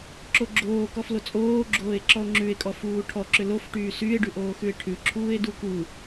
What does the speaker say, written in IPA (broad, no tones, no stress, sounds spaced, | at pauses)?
ǁ o ɡ͡ǁ oː k ɔ f l o t͡sʼ oː ɡ͡ǁ oː e̯ ǁ ɔ o̯ ŋ͡ǁ ʉ e̯ kʼ ɔ f uː ʈʰ ɔ ǁ ʏ l o f ʈ yː s y e̯ ɖ ʉ ʔ oː x ʉ e̯ ʈʰ ʉ ǁʰ uː e̯ d u k u